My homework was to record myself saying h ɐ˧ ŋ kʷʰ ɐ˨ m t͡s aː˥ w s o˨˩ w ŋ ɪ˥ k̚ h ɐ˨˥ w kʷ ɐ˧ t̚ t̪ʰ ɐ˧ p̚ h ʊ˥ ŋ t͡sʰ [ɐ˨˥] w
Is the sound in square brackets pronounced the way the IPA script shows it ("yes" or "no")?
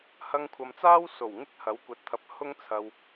no